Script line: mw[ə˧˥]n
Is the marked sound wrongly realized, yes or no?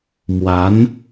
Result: yes